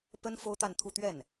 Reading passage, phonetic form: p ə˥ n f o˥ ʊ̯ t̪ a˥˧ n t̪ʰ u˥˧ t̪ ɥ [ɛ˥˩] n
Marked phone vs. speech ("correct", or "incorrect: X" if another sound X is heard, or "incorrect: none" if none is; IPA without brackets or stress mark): correct